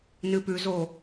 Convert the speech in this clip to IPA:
nɨpʉzo

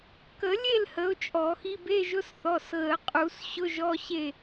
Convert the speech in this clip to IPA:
kə˨˩˦lʲe˥˨l hə˨˦ʊ̯ t͡ʃʼɔ˨˩˦xi˧˥˧b e˧˥˧ʒʊ˧˥˧s θɔ˩˧˩sɣə˨˩˦ qʼu˨˩˦s ɕʊ˧˥˧ʒɔ˧˥˧ ɕe˥˨

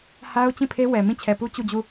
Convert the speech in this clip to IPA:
ha˦ʊ̯ t͡ɕĩ˦˨pʰe˦ wɛ˨ mĩ˦˨t͡ɕʰɛ˨pu˦ t͡ɕu˦˨d͡ʑu˦˨

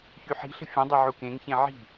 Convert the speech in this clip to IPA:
çyħi̤ɬə̤ fʲə̃dˤe ʕukẽŋçẽ ʕi̤

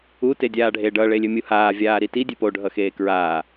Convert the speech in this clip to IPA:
ute dʲaːɖʱe ɖʌ ɭelʲømʲuhaː vʲaːɾiti dʲøpoɖʱʌ xeːkɹaː

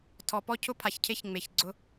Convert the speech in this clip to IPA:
tʰɔ˨pɔ˦cʰʊ˦ pʰa˨çcʰe˦ç ŋ͡me˨çɡ͡ǀʊ˦

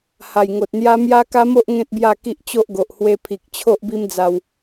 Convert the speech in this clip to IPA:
ha˨˩jŋo˨t̚n̪ja˦ mja˦ka˦mo˦ʔ ŋẽ˦t̚bja˥˧ ki˦ʔt͡ɕo˦ʔɡo˨ʔ hwe˧pʰi˨k̚ t͡ɕʰo˦ʔbi˦md͡za˧w

